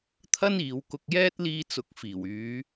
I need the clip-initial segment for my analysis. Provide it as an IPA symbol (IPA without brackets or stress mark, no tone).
t̪ʰ